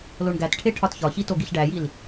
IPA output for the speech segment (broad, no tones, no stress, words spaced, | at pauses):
loɳɡætʈʰe ʈʰɒtçɒçi toɡiɬɖæjil